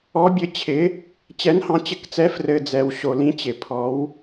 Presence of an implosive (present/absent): absent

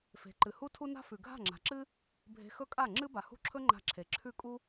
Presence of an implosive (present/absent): absent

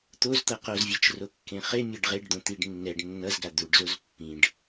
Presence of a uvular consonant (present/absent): present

